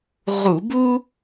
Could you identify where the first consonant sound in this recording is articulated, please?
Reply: uvular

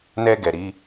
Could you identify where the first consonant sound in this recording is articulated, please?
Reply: alveolar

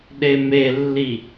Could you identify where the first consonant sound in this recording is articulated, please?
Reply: alveolar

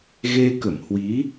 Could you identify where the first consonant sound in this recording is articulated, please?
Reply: velar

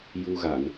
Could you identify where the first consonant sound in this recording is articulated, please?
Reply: palatal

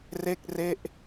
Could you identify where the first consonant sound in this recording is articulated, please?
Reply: alveolar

